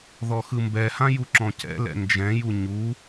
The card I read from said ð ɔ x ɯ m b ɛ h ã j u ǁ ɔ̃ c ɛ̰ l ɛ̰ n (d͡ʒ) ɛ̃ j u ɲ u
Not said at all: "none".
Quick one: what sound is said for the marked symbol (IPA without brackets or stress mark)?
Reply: d͡ʒ